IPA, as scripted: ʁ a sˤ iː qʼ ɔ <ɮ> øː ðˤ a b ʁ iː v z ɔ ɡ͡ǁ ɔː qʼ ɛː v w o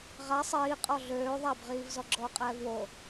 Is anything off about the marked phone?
no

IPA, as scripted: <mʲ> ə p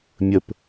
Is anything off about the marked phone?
no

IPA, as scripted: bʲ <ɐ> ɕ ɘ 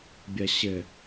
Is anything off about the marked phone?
no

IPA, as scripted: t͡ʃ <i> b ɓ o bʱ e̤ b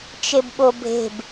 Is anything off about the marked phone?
yes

